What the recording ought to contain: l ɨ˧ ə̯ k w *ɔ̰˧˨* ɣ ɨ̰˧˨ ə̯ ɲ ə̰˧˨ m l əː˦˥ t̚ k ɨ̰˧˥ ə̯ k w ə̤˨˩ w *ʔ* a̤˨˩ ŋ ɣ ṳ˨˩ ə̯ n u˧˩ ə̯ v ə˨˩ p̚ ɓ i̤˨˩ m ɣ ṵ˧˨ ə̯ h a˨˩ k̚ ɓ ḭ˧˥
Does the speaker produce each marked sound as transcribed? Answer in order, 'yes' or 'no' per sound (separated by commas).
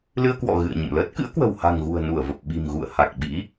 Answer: yes, no